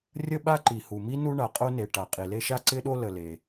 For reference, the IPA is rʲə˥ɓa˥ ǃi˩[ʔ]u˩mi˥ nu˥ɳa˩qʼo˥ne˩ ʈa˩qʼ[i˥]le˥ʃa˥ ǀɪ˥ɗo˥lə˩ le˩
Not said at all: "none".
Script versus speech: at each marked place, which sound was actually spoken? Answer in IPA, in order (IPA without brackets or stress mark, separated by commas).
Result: h, i˩